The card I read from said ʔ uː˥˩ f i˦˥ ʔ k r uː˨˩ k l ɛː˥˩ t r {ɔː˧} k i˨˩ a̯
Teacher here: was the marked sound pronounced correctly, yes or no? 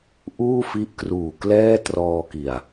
yes